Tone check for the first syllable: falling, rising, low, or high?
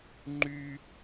high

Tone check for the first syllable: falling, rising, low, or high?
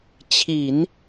low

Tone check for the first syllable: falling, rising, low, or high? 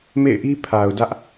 falling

